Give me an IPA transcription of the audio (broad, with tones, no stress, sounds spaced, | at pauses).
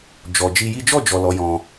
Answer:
d͡ʒ ɔ˨ d͡ʒ i˧ j i˦ d͡ʒ ɔ˦˨ d͡ʒ ɔ˨ l ɔ˨˦ j ɔ̃˧